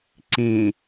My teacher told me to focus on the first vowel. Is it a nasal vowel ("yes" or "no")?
yes